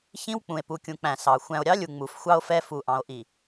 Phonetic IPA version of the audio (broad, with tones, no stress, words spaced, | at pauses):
çĩ˦w k͡pũ˨e̯pu˨kʲũ˨k͡pæ̃˨ sɑ˨ xʷæ̃˨o̯ɾʲɑ˦lʲu˨ ŋ͡mu˨fxʷɑ˦o̯fɛ˦ fu˨ʔɑ̃˨o̯ʔi˨